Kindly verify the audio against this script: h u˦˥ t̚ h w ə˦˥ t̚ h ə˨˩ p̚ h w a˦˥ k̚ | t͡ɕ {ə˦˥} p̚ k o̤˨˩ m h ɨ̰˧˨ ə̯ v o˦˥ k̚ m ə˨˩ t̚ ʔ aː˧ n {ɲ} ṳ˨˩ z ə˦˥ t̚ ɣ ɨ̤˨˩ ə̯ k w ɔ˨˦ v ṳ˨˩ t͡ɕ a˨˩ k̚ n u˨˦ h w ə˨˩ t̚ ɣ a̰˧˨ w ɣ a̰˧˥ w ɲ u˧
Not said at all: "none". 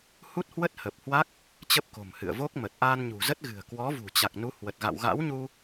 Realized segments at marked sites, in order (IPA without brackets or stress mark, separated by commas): ə˦˥, ɲ